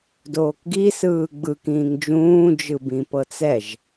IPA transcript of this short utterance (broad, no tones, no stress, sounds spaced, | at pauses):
d oː k ɡ i s ɯː ɡ͡b ɯ k ĩː ŋ d͡ʒ ũː d͡ʒ ɯ b ĩ p ɤ t͡s ɛ ʒ